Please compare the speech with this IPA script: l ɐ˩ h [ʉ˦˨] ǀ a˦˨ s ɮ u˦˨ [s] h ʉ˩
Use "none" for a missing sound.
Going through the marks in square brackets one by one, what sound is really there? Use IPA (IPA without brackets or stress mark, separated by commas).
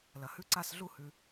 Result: ʉ˦˨, none